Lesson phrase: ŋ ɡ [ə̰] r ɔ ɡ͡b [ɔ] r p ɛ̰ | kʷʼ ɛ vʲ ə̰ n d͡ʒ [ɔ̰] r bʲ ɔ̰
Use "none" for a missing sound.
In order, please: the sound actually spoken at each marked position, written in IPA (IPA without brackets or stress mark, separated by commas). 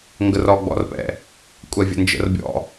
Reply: ə, ɔ̰, ə̰